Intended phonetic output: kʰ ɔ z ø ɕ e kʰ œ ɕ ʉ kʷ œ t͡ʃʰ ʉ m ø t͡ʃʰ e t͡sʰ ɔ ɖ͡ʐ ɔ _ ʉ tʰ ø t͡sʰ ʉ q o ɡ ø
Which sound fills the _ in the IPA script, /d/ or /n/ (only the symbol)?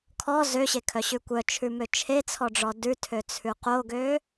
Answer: d